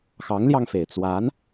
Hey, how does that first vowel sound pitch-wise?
rising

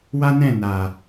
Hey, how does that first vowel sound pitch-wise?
high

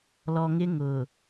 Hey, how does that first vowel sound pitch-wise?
low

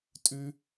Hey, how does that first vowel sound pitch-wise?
high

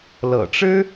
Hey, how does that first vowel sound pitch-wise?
low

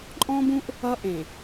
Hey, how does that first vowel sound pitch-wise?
high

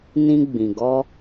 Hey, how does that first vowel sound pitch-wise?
high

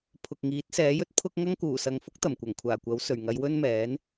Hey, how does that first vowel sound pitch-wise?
low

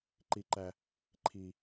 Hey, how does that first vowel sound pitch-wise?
high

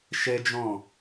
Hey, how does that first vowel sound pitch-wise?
high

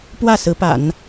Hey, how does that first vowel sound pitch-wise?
falling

